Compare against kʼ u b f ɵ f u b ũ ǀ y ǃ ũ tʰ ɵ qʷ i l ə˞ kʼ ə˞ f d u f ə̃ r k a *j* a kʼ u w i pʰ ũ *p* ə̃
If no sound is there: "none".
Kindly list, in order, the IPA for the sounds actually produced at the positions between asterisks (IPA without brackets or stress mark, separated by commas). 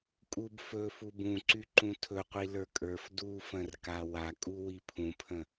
w, pʰ